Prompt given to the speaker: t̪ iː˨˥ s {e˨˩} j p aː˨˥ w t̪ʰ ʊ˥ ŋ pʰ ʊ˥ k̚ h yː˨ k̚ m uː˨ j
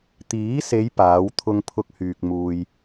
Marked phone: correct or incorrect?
incorrect